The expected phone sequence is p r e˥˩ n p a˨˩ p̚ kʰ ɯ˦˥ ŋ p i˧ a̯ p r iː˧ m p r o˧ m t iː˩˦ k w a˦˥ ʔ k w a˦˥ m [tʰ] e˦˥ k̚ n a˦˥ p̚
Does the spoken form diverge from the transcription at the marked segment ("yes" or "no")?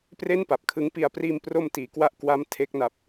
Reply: no